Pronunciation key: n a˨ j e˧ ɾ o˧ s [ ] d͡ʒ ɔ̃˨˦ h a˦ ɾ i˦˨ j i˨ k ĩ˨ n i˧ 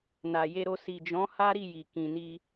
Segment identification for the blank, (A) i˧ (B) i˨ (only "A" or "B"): B